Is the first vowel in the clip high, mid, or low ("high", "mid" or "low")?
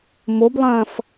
mid